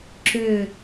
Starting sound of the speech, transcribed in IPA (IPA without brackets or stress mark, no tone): ǁ